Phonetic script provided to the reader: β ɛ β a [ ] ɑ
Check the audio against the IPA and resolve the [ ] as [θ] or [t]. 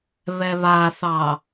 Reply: θ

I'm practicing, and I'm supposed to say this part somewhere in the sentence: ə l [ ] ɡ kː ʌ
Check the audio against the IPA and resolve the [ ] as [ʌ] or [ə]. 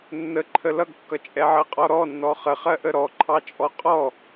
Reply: ʌ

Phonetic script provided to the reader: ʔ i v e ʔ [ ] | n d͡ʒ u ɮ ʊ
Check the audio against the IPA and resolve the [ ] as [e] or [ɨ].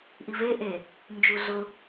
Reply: e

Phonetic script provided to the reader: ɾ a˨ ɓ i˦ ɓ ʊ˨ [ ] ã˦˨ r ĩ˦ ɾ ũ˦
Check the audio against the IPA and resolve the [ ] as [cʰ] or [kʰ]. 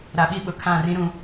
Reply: kʰ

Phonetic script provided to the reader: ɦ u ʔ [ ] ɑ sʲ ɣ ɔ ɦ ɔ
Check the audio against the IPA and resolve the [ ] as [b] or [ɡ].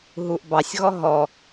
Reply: b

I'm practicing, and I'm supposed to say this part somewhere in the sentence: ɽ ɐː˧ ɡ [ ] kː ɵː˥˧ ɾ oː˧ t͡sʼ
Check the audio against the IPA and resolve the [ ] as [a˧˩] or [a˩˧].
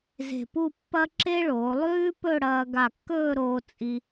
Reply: a˧˩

